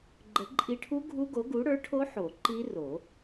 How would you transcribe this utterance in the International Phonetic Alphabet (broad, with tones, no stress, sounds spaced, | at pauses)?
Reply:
ɡ͡ǃ ə˨˩˦ ǃʼ i˧ ʈʰ u˦˥ ɡʱ u˦˥ ɡ o˨˥ ɡ u˨˥ ɽ ə˞˨˥ ʈʰ o˦˥ ħ o˨˩˦ ǃ i˦˥ r o˨˩˦